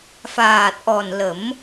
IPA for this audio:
faː˨˩t̚ʔɔ˨˩nlə˨˩˦m

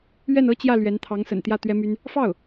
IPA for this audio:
ɥɛ˥˩nɤ˥t͡ɕjä˥˩ lɥɛ˧˥nt̪ʰɑ˧˥ŋsə̰˨˩nt̪jä˥˩ t̪ɥɛ˥my˥n | fɑ˥˩ʊ̯

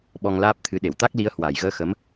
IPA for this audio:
ɓɔ˧ŋlaː˦˥p̚t̪ʰɨ˨˦ ɗe˧˩wt̪a˦˥k̚li˨˦ə̯ hwa˨˩jɣəː˧xə˨˦m

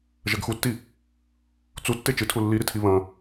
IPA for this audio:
ʒɐɡxutːi | t͡su tːet͡ʃɨtʰu lːiɾitʰi βɐ̃

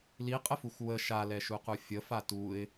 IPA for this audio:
liqʼəfuxʷ wə ʃalɛʃuqu fʲəfa tuɪ̯

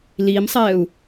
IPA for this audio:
limsˤɛːu̯

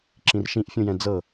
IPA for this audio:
ǁĩrʃĩʔfʲũjɛ̃ d͡zɤ

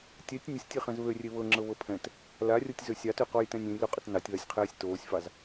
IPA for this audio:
tʲɛtʲ nʲəsʲtʲeχɛ̃z βørʲe βɤŋ͡ǁɤβɤ pʰɛ̃t | larʲotʲzø sʲɑtøqɔjtɛ̃nʲ ẽjlɵqʼət nɑtʲðasʲqʰɛːsʲ toːsʲfɑz

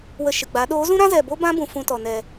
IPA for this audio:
wə˧ʃɨ˨ɡ͡ba˨˦ ɗoː˨˦zũ˦ɾã˦zɛ˨ bo˦bã˦bũ˨ fũ˧tɔ˨nɛ˨

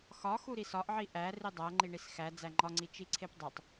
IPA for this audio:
xɒxu ɾisɒʔʕi ʔæ ridˤæŋ͡ǃiɳis xæ d͡zæŋ͡ǃɒŋ͡ǀi t͡ʃiǀʰepdˤutˤ

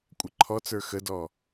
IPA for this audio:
kʷʼəǃʰɔt͡sə˞ xədɔ

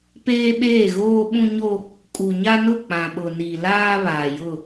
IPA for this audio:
peː˦ɓeː˦˨ ɣoː˦ɓũ˦ɲo˦ | kʼu˨ɲa˦nʊ˦˨ k͡pã˨ɓʊ˨ni˨ laː˦ βaː˨jʊ˦˨

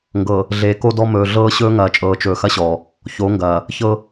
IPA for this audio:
ŋɡɤ˨ | ɮeː˨ko˦dɔ˦ mɵː˨ɮɤː˦ɕɵː˦ ŋɐː˨t͡ʃʼɤː˨t͡ʃɵː˨ xɐ˦ɕɔː˨ | ço˨˦ŋɡɐː˨ | çɤ˦

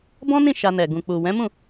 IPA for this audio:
bɔ̃˦nĩ˦˨ ʃa˧nɛ˨ ɡũ˨ k͡pu˨ wɛ̃˨˦mũ˦˨

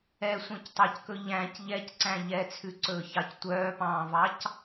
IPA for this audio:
ɛsʷœ̃ctˤæckɵ ʎæ̃c ʎɛcǀæ̃ ʎɛt͡sʰʉǀɵːçɑc tʷœːpɑ̃ːvɑc

